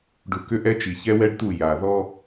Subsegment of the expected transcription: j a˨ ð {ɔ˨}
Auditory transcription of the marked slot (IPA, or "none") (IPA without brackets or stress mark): ɔ˦